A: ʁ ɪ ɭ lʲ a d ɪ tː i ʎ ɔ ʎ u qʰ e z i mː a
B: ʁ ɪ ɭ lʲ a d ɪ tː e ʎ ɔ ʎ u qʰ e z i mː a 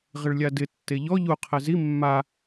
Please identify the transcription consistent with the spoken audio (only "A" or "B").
B